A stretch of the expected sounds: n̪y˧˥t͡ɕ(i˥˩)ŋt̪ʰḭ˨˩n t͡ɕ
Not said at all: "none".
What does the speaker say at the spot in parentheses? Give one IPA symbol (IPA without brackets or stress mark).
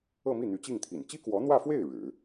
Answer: i˥˩